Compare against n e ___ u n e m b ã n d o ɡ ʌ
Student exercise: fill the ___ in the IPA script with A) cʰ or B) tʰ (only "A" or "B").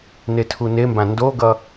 B